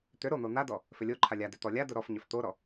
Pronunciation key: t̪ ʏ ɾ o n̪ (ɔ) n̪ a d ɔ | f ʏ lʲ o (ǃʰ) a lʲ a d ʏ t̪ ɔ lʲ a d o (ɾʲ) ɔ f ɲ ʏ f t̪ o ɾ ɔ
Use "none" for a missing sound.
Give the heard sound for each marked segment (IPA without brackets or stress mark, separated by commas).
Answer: o, ǃʰ, ɾ